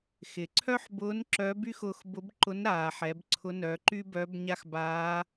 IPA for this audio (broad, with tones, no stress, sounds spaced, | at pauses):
x ɪ˩ ǀʰ œ˥ ħ b ʊː˧˥ n ǁ œ˧˥ b y˥ x ʊː˧ x b ʊ˧˥ b ǃ ʊ˧˥ n ɾ aː˩ ħ ɛ˩˧ b ǀʰ ʊ˧˥ n œ˩˧ ǃ y˥ b œ˧˥ b ɲ a˥ x b aː˧˥